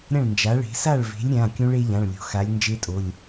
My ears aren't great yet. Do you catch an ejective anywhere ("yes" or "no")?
yes